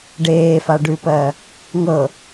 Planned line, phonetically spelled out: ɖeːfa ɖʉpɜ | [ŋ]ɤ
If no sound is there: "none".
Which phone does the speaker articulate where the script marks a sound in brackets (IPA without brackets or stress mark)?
ŋ